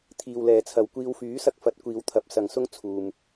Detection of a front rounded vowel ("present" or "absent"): present